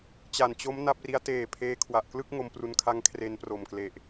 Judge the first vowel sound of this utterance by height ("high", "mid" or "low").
low